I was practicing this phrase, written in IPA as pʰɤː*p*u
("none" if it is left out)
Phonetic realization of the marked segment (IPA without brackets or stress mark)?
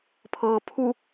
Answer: pʰ